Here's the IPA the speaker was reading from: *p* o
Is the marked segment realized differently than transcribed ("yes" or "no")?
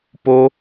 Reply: no